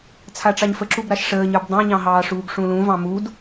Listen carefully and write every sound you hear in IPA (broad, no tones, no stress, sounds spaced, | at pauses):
t͡sʰ a ʈ͡ʂ ɑ ɲ f ə ǁ u b ɾ a ʃ ʂ əː ɲ ə˞ b dˤ ɑ̃ ɲ ɑ̃ ɦ ɑː ʂ uː ɡ ʂ ũ l ũ v ɑ̃ m u d